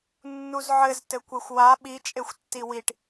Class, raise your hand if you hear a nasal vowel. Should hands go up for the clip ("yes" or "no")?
no